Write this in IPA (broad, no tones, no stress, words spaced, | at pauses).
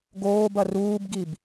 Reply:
ɡoːbɐ ruːbɡib